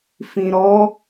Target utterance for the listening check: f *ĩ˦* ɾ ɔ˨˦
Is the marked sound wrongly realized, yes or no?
yes